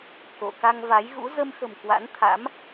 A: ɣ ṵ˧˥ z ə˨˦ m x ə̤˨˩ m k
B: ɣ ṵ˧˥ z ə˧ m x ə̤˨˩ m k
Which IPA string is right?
B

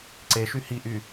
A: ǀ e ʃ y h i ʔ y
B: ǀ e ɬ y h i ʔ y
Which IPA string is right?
A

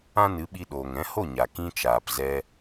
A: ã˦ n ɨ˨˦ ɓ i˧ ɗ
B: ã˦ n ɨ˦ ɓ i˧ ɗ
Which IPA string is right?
A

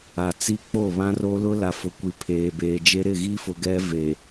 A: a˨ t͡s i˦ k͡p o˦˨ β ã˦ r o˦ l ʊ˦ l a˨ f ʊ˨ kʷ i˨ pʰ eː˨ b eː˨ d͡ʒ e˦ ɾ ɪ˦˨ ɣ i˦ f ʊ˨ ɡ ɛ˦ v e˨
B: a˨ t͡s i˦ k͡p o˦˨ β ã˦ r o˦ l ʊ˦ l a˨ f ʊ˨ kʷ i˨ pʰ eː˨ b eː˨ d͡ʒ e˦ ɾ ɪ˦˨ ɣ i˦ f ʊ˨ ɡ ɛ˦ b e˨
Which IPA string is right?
A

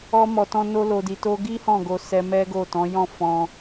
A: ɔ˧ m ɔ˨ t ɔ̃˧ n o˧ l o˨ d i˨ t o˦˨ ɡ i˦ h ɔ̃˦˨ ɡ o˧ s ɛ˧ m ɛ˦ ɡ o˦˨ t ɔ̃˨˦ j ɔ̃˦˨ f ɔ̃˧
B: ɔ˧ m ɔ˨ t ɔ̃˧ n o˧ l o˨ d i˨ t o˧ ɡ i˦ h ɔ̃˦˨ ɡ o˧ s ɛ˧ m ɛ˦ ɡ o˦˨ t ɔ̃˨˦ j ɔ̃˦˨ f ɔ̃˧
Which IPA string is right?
B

